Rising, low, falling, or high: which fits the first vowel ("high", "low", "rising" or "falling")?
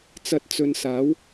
rising